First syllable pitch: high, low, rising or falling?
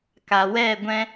low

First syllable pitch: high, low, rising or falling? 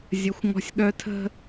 high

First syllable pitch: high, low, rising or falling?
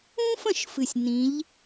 high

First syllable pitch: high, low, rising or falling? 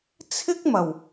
high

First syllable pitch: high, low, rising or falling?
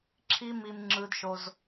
high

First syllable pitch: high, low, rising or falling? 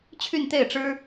falling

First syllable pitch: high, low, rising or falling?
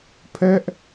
high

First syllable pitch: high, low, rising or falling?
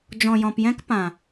low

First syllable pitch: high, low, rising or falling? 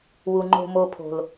low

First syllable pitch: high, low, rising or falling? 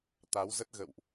rising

